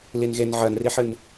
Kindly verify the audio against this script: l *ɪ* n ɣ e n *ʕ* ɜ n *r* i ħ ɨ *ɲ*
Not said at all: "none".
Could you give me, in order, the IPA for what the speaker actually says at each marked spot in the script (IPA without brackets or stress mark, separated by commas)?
i, ʕ, r, n